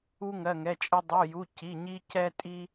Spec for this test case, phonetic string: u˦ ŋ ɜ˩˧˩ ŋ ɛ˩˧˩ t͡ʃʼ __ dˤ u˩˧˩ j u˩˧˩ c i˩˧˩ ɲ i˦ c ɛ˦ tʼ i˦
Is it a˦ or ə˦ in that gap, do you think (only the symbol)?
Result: ə˦